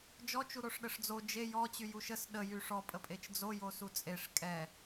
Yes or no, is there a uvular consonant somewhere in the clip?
no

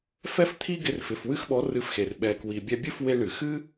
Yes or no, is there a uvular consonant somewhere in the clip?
no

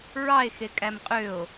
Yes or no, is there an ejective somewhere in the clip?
yes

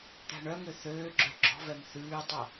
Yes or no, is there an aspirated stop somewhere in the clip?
no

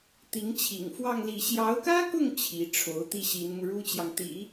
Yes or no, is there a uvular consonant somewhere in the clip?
no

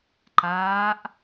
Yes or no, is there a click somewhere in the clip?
yes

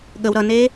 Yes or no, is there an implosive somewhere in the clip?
yes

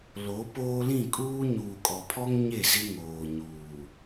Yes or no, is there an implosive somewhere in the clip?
no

